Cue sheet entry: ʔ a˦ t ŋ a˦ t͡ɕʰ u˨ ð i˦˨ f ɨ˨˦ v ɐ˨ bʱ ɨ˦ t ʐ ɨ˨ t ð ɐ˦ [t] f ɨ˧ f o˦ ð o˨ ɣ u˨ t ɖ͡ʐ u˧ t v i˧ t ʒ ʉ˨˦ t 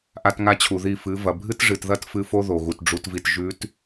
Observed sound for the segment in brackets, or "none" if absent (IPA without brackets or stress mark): t